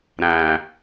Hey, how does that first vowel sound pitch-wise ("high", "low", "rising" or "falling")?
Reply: low